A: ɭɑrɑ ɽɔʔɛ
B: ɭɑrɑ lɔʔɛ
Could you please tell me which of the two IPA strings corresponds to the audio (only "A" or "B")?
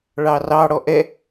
A